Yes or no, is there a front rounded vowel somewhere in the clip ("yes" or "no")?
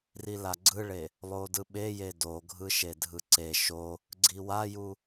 no